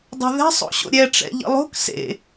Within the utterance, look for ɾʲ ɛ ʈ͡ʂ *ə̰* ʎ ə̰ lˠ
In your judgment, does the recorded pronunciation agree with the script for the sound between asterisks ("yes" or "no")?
no